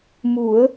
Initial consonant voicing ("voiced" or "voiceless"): voiced